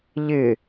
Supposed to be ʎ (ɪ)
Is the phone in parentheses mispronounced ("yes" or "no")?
no